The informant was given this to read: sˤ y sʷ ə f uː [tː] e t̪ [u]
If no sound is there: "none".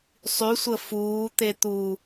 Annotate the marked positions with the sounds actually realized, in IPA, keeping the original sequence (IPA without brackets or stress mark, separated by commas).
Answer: t̪, u